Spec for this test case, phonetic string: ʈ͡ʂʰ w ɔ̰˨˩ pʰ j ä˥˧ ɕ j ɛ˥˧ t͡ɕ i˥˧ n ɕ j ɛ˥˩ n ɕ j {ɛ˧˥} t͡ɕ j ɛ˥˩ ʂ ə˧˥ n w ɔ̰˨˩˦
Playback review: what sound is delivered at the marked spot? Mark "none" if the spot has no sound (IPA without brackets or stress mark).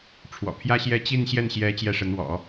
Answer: ɛ˧˥